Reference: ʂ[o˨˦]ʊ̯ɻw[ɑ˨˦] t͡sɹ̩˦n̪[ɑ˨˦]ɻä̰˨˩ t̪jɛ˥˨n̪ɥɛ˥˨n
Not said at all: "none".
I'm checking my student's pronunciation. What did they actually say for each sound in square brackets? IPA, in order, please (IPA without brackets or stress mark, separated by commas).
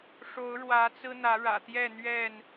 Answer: o˨˦, ä˨˦, ä˨˦